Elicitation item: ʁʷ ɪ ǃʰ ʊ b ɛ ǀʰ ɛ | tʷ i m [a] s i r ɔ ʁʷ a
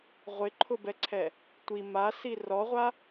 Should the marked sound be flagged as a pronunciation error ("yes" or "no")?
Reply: no